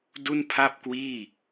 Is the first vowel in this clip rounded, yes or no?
yes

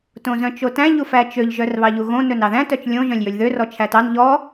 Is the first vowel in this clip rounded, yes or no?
yes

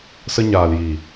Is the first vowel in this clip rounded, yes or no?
no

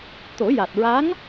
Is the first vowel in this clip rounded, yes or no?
yes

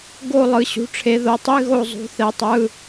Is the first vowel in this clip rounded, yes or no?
yes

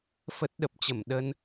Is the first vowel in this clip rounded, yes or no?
no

